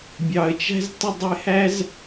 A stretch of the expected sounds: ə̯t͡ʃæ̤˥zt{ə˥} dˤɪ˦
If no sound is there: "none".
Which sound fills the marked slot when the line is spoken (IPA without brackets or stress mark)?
ə˦